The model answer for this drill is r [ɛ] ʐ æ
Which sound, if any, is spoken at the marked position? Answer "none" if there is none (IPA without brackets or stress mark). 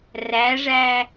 æ